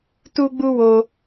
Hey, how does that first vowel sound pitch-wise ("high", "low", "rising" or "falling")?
high